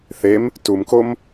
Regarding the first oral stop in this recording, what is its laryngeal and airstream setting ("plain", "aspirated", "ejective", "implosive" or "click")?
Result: plain